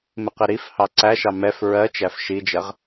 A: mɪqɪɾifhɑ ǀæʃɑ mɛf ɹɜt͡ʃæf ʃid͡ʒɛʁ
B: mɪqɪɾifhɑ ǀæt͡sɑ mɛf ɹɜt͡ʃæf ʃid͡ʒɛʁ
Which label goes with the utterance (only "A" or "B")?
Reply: A